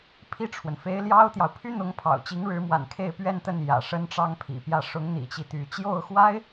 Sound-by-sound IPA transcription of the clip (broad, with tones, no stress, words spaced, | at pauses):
pʰi˥˩ʈ͡ʂʰwə˩nfe˧˥ɪ̯ ljɑ˥ʊ̯t̪jɑ˨ʊ̯ pʰy˥n̪ʊ˧˥ŋ pʰɑ̰˨˩ʊ̯t͡ɕi˧˥ŋɻɻ̩˧˥mwa̰˨˩n kʰe˥˧ɪ̯pɥɛ˥˧nt̪ə˥˩n jä̰˨˩ ʂə˥nʈ͡ʂɑ˥ŋpʰḭ˨˩pjä˥˩ ʂʊ˧˥ŋn̪ḭ˨˩t͡ɕi˦ t̪y˧˥ t͡ɕjo˥˩ʊ̯xwa˥ɪ̯